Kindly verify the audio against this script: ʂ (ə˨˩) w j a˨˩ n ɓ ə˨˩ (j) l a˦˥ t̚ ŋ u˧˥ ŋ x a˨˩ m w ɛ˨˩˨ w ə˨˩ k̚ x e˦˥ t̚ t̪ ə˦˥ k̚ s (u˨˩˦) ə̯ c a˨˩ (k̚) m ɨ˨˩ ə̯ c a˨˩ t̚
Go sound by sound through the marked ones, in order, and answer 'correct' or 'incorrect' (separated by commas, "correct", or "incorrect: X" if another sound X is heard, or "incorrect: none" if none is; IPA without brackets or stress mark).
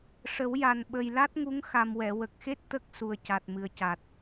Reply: incorrect: ə˨˩˦, correct, incorrect: u˨˩, incorrect: t̚